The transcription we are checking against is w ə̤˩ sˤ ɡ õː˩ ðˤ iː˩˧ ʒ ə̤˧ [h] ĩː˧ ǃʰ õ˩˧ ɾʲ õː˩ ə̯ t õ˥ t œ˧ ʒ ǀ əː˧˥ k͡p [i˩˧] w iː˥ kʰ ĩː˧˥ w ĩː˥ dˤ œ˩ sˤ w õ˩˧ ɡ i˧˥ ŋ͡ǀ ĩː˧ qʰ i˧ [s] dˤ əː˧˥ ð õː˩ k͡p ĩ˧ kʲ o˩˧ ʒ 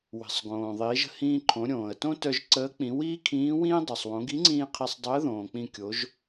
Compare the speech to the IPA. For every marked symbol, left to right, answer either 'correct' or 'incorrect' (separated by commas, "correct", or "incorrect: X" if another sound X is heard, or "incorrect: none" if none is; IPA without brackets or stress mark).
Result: correct, incorrect: ĩ˩˧, incorrect: sˤ